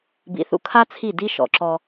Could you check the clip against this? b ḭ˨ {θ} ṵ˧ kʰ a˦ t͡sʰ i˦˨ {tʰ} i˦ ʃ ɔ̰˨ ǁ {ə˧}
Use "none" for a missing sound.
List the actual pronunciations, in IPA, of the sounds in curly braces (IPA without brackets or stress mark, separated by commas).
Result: θ, d, ɔ˧